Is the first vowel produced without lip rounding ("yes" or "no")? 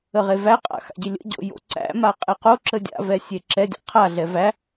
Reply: yes